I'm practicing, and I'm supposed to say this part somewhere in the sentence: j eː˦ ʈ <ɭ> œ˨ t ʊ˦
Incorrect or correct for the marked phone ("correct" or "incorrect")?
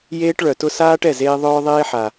correct